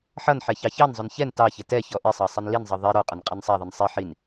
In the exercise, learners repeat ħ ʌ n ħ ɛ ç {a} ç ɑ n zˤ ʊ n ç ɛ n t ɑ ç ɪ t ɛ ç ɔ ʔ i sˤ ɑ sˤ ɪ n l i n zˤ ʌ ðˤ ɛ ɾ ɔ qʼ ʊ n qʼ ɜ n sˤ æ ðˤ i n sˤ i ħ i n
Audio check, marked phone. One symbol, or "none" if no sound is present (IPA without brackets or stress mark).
ɑ